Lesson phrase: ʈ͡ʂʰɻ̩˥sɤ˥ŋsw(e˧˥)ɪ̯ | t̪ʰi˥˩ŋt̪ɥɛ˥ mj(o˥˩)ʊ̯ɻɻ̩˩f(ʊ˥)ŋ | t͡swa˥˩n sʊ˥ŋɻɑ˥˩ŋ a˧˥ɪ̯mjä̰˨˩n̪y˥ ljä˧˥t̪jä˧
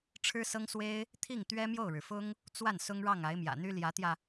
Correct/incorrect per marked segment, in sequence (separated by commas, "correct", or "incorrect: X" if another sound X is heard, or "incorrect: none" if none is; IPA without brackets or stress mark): incorrect: e˥, correct, correct